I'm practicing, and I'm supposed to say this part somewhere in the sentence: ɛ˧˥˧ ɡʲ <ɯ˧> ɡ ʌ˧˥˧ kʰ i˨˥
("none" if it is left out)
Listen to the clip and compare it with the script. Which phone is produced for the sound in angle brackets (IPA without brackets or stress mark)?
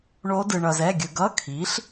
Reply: ɯ˧